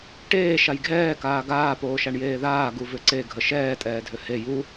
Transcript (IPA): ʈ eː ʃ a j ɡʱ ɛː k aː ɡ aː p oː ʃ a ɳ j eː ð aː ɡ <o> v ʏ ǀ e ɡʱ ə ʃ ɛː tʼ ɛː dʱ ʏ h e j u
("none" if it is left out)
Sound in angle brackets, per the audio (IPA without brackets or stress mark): u